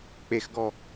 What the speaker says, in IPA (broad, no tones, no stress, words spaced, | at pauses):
k͡pexɡɔ